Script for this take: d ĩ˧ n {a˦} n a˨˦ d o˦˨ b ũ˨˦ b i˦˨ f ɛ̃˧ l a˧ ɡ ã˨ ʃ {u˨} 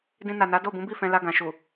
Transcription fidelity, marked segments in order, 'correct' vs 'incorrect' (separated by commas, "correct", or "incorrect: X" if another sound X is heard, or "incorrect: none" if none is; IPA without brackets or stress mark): incorrect: a˨, correct